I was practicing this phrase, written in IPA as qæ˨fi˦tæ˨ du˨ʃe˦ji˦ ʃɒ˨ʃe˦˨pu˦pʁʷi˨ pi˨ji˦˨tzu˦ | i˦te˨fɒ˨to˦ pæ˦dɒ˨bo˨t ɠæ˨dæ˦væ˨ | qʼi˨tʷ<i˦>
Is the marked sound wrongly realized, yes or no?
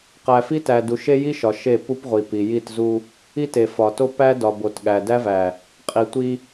no